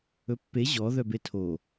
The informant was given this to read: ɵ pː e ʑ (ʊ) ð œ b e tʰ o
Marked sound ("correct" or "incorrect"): incorrect